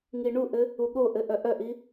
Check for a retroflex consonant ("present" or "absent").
present